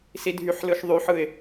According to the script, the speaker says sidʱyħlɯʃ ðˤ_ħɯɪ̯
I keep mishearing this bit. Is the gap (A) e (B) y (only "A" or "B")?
B